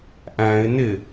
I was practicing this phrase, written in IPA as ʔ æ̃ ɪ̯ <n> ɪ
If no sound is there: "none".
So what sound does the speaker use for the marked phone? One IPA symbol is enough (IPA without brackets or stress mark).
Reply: n